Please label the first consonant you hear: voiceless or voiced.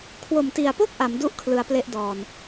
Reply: voiceless